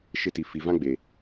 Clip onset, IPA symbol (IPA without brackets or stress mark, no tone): ʃ